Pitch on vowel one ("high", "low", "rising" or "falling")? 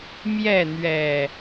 falling